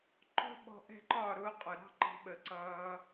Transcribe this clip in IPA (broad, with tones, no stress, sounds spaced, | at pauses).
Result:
ǃ ɔ̤˦ ɓ ɔ̤˧ ʔ ɛ̤˦ ǃ ɒ˦˨ ɾ ʊː˦ qʼ ʊ˨ ɾ ɑ̤˦ ǃ ɑ̤˧ ɓ ə˨ ǀ ʌː˧